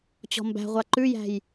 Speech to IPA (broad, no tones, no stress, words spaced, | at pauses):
t͡ɕɔ̤mbæ̤ʁʷa ǃʉjæ̤j